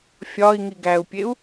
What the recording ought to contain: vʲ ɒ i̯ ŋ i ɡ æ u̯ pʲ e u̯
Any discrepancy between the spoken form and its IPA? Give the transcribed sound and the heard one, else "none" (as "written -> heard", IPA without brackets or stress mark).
vʲ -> fʲ